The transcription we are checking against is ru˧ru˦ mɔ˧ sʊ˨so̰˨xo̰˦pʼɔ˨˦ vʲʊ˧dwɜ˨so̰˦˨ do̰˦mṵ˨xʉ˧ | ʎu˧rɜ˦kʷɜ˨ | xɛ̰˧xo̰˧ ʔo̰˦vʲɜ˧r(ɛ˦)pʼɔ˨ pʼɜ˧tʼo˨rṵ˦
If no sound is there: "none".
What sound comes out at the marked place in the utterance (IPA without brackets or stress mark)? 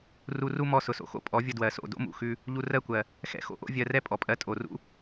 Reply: ɛ˦